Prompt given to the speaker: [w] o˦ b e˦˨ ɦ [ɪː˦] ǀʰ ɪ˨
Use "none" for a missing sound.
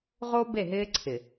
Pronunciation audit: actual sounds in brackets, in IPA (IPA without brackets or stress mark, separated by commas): ʁ, ɪː˦